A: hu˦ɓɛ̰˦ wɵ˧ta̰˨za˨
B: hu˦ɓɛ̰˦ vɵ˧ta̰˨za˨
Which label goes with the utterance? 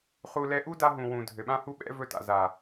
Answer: B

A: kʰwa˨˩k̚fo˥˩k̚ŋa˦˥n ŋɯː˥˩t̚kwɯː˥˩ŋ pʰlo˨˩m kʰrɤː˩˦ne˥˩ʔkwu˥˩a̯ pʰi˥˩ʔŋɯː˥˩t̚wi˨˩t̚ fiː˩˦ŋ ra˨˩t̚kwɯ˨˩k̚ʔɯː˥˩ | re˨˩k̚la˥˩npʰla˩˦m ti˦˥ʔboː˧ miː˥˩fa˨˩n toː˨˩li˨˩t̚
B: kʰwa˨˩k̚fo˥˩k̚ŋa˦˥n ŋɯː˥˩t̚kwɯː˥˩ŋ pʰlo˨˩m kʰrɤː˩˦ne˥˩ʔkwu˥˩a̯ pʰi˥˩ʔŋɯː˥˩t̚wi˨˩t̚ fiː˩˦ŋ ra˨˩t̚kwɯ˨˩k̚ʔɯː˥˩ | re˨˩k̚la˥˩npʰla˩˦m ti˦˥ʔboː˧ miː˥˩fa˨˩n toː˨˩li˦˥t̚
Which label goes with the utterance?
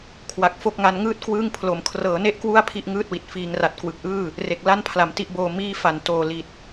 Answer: A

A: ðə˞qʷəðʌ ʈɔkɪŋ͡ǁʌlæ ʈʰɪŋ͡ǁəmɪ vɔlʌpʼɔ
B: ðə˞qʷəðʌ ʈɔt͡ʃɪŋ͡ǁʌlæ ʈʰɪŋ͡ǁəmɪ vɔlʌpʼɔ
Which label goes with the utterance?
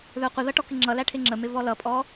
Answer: A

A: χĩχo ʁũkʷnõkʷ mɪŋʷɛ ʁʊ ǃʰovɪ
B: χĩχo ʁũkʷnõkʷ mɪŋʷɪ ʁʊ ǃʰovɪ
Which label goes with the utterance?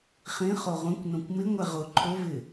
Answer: A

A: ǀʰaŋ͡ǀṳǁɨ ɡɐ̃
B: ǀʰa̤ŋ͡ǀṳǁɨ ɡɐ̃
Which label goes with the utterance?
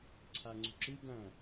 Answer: A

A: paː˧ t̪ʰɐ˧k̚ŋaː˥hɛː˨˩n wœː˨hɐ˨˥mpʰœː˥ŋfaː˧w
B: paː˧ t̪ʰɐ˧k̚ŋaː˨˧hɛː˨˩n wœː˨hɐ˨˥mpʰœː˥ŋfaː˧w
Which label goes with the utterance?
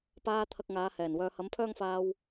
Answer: B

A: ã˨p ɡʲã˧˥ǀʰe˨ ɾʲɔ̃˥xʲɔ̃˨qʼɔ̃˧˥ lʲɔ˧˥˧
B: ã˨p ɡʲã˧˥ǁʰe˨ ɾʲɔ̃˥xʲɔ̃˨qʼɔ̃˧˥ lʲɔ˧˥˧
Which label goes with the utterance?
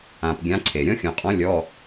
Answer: A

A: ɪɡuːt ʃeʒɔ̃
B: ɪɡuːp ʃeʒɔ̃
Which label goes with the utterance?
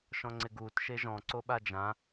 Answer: A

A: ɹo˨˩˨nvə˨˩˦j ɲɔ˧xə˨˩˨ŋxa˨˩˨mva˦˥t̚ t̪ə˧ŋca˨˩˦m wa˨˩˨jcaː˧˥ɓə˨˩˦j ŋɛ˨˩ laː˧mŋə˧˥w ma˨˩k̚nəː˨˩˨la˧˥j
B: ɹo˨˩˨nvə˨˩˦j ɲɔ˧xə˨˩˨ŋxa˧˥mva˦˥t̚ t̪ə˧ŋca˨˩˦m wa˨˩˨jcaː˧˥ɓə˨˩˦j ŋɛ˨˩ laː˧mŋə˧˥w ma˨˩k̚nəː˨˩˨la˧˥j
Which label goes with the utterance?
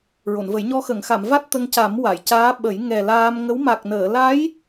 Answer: A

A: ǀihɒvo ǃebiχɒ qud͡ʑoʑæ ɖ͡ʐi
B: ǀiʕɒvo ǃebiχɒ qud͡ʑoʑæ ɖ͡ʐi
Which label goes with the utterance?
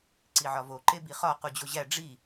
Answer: B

